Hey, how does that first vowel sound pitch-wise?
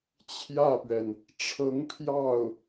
falling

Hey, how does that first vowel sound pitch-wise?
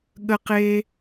high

